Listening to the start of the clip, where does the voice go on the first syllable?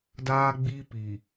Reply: high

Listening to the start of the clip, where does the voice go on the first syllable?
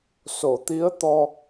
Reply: low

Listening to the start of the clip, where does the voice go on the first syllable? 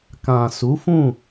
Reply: low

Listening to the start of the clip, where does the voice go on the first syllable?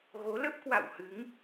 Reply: rising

